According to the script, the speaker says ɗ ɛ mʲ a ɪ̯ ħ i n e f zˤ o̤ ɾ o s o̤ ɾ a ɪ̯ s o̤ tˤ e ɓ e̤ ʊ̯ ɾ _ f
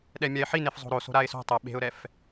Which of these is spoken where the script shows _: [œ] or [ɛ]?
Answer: ɛ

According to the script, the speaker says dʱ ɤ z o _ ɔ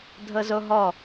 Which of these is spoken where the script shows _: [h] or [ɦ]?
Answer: ɦ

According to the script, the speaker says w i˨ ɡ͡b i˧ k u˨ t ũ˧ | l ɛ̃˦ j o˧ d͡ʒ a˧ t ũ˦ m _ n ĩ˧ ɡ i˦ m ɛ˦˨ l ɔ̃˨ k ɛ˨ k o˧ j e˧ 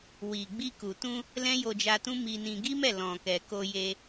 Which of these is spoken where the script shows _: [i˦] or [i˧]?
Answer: i˧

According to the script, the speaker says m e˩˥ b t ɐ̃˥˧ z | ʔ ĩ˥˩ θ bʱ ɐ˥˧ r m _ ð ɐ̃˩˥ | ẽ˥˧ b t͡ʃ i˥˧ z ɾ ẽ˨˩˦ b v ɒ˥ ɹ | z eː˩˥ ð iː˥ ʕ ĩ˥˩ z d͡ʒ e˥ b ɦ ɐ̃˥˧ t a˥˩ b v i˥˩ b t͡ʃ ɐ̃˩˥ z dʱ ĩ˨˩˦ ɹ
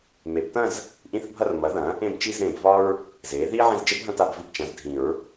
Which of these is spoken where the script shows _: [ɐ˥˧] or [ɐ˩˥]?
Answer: ɐ˩˥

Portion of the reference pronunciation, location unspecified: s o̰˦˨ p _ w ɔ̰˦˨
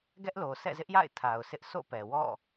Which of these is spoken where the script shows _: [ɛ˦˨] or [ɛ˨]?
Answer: ɛ˨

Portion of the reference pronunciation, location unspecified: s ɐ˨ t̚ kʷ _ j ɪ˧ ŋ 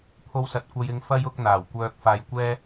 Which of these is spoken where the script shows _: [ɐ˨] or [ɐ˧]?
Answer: ɐ˧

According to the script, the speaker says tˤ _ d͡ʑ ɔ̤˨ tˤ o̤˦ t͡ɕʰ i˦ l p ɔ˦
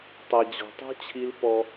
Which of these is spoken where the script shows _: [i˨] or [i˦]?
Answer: i˨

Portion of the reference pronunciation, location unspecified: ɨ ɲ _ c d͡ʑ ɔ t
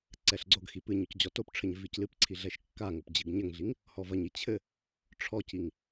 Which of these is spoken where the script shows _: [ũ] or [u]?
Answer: u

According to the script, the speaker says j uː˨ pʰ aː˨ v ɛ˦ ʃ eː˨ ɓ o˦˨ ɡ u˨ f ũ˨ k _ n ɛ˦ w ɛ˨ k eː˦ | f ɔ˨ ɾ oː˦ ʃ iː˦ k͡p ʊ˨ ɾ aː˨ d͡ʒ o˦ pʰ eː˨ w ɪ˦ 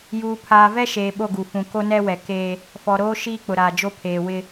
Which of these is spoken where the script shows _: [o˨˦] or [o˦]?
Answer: o˦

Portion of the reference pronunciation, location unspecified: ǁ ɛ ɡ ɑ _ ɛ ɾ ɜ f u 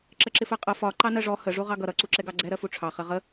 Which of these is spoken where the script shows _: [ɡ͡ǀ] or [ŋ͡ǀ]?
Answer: ɡ͡ǀ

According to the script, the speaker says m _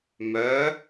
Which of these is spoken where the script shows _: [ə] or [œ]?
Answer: œ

